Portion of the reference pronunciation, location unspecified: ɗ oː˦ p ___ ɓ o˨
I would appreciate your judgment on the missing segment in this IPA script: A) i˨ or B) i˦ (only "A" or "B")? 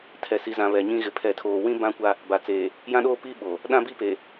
B